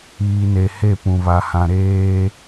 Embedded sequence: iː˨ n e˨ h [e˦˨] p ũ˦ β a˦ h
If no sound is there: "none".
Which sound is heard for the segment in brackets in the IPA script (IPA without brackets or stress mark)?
e˦˨